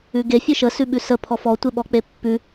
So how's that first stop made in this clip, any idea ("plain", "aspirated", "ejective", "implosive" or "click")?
plain